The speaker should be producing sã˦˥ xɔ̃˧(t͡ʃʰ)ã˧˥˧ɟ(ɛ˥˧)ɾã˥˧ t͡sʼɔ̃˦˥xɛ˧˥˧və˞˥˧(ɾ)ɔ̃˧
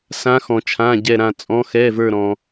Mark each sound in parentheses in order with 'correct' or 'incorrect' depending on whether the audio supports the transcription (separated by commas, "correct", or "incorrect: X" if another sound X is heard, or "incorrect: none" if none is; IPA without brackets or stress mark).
correct, correct, correct